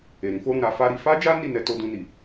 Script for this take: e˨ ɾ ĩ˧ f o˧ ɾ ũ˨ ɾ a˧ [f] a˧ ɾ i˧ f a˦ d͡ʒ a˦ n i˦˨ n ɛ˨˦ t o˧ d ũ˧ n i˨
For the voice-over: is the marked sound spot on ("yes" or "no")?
yes